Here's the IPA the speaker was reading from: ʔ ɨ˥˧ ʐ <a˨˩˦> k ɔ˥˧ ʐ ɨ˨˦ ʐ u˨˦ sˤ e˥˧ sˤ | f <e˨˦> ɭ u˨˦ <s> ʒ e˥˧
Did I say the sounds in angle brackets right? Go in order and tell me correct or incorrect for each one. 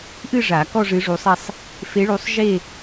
correct, correct, incorrect: sˤ

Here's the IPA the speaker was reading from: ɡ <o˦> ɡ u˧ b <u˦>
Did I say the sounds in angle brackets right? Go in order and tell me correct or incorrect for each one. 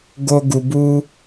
correct, correct

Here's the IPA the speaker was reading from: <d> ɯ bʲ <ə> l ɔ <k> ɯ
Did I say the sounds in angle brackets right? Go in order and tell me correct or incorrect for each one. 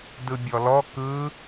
correct, incorrect: ɔ, correct

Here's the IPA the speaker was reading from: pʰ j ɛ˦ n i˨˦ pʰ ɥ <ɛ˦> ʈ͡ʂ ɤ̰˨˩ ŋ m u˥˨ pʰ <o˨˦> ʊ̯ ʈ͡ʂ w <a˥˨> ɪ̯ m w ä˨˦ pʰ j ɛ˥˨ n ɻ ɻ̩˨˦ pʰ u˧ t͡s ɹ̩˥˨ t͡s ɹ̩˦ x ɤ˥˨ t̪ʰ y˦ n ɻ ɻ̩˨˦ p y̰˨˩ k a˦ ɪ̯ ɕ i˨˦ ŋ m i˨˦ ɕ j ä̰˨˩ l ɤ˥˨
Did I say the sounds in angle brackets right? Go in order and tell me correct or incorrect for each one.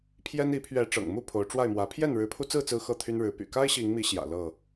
incorrect: ɛ˨˦, correct, correct

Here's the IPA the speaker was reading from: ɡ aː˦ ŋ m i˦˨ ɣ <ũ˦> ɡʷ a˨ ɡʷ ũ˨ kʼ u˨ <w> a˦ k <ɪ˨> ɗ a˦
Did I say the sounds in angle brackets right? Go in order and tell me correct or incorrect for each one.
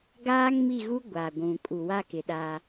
incorrect: u˦, correct, correct

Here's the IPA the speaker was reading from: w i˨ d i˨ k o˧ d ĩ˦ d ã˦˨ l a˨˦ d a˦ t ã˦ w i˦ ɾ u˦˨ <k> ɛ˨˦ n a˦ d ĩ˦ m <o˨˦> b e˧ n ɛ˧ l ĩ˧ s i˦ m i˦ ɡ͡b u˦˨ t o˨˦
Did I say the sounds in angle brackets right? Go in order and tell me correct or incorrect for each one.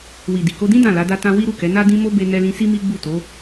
correct, incorrect: o˦

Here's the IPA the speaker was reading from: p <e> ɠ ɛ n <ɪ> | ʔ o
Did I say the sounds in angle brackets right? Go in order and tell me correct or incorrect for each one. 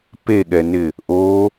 correct, correct

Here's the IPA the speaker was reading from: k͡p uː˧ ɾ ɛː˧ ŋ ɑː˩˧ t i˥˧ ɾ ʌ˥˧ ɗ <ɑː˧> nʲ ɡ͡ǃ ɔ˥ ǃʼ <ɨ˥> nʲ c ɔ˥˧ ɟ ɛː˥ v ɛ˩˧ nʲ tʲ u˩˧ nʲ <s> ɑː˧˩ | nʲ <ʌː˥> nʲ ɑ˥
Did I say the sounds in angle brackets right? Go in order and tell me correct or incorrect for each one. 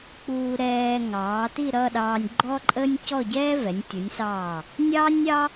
correct, incorrect: ə˥, correct, incorrect: ɑː˥

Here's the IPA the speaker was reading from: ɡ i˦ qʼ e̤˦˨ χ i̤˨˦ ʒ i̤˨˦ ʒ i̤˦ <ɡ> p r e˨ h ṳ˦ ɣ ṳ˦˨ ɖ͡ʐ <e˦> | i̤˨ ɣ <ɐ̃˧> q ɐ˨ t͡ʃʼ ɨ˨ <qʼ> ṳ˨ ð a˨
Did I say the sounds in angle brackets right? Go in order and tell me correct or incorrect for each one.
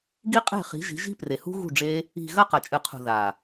incorrect: none, correct, incorrect: ɐ˧, incorrect: qʰ

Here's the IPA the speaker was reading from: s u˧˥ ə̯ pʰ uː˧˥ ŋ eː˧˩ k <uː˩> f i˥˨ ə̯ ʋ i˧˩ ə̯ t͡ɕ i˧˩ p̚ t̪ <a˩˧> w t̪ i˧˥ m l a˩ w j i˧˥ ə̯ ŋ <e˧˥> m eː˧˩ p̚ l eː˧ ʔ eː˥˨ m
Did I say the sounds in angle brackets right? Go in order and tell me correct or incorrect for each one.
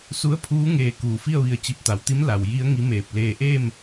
correct, correct, incorrect: i˧˥

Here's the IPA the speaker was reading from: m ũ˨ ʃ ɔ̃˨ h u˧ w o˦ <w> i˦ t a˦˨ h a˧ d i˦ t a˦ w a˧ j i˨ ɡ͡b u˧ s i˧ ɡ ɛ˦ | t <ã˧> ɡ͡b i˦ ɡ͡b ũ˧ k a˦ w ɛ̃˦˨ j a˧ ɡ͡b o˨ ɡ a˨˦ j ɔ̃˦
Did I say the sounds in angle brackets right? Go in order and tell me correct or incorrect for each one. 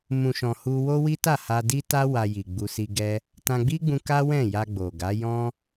correct, correct

